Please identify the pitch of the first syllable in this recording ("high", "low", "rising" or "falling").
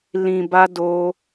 low